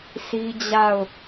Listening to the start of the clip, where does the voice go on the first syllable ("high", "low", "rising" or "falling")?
high